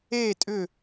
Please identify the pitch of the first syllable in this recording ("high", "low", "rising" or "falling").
falling